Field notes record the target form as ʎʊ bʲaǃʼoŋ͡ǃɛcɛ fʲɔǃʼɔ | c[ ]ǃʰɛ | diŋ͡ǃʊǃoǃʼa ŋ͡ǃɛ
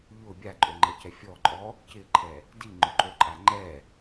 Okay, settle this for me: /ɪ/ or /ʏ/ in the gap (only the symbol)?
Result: ɪ